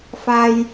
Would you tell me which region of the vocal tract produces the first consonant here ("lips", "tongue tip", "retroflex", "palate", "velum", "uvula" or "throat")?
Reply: lips